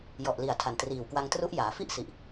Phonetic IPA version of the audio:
j ɔ˨˩ ʔ l i˨˩ a̯ tʰ a˨˩ n t r iː˨˩ w k w a˧ ŋ t r u˦˥ ʔ j aː˩˦ f i˥˩ ʔ s i˨˩ ʔ

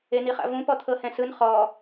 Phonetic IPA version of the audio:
e n̪ i χ a̰ v ũ p ɔ t̪ʰ ɤ h ɛ̃ s ɯ n χ ɔ

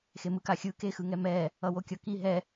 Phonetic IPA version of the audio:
x e m ɯ k a xʲ ɯ k e x ɯ ŋ ɛ m ɛ | ʌ w o kʲ ʌ k i ɦ ɛ

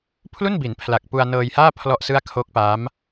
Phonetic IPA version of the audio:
pʰ l u˥˩ n b i˩˦ n pʰ l a˨˩ k̚ p u˧ a̯ n ɤː˧ j h aː˥˩ pʰ l ɔ˥˩ ʔ s ɯ˥˩ a̯ kʰ o˦˥ k̚ p a˦˥ m

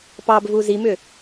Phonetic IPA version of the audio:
p ɑ b v u z i m ʏ

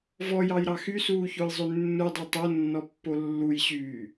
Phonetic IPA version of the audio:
v ɔ j ɑ j ɾ ɑ x y s uː ç o j zˤ ʉ nː u dˤ e tˤ o nː ɔ pː o lː u j ɕ yː

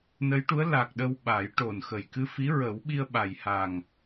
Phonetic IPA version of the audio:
n ə˧˥ j ʈ u˧˥ ə̯ l a˨˩ k̚ ɗ ə˧ w ɓ a˨˩˦ j ʈ o˨˩ n x ə˨˩ j k ɨ˧ f i˧˥ ɹ ə˨˩˦ w ɓ i˧ ə̯ ɓ a˨˩ j h a˨˩ ŋ

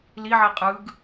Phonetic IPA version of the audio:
l i ʕ i qʼ ɯ ɡ

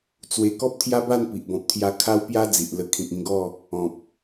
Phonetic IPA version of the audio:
t͡s w e˧ k ɔ˦ p̚ t̪ʰ j a˦ b a˥˧ n p i˨ ʔ b ɔ̃˨ p̚ t̪ʰ j a˧ kʰ a˦ w p j a˦ d͡z i˨ ʔ l ə˧ kʰ ĩ˨ k̚ ĩ˧ ɡ ɔ˥˧ | ɔ̃˨ p̚

